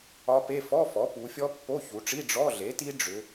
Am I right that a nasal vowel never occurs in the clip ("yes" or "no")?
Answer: yes